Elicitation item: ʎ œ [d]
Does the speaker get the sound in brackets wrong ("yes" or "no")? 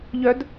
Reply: no